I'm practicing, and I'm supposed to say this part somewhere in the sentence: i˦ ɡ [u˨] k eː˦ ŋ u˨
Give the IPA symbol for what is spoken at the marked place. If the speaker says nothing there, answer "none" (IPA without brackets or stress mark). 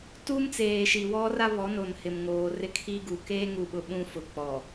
u˨